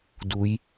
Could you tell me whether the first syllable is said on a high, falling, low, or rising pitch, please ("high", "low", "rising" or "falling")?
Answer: rising